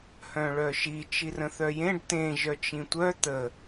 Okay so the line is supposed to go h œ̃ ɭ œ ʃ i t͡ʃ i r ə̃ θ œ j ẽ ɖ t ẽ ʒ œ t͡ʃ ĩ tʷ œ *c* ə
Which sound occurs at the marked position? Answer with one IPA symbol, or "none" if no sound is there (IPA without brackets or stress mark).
t̪